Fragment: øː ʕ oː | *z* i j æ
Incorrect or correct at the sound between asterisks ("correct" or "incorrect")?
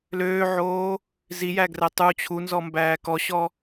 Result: correct